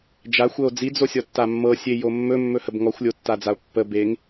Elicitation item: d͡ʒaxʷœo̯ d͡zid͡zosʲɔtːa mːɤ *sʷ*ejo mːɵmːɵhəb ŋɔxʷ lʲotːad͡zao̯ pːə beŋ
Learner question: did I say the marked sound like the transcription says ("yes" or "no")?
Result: no